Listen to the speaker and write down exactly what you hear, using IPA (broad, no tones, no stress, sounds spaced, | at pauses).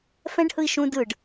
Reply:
f ɛ̃ ɖ h ɯ i̯ ʃ ũ d ɯ ɖ